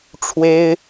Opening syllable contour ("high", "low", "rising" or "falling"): high